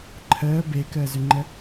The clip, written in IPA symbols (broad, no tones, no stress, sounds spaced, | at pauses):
ǃʰ əː b e k əː z ʏ ŋ͡ǃ ə